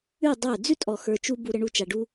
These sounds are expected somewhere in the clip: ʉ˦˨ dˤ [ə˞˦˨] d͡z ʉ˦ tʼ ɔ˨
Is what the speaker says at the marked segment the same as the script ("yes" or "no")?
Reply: yes